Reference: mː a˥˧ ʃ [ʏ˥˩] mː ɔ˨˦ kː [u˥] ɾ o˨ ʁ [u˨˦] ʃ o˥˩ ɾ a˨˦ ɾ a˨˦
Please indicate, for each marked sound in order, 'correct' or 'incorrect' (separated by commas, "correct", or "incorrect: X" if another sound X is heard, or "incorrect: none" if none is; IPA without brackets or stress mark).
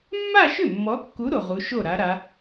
correct, incorrect: u˨˦, correct